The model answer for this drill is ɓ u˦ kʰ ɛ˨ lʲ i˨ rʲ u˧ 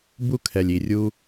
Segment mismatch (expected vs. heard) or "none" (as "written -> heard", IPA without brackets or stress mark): ɓ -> b